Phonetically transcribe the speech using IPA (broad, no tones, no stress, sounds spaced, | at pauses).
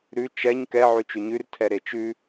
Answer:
ɾ ʉ t͡ʃ ɛ ɲ k ɛ ʕ ʉ t͡ʃ ʉ ɲ ʉ r tʰ ɛ ɾ e t͡ʃ ʉ